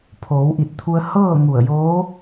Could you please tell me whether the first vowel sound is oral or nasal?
oral